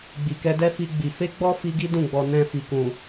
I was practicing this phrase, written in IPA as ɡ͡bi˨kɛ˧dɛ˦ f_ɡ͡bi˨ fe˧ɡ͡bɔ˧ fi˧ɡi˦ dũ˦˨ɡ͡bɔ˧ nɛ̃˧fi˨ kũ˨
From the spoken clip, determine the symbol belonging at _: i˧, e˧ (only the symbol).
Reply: i˧